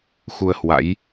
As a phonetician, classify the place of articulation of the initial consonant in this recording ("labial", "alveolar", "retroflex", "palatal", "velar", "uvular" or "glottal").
velar